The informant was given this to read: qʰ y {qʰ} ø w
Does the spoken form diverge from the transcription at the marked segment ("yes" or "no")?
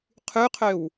no